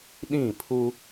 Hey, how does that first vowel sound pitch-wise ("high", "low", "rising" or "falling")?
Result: falling